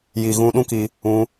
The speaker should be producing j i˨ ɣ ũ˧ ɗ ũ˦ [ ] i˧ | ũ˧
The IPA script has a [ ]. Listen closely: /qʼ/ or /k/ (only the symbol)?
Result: k